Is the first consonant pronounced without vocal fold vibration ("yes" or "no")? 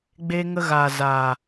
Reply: no